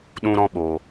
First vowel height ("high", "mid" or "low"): high